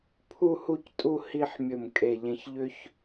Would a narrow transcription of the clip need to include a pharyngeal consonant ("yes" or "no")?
yes